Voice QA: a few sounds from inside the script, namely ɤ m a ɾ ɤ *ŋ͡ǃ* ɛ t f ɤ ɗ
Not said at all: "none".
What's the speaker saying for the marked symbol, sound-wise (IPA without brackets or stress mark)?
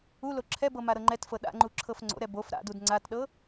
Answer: ŋ͡ǃ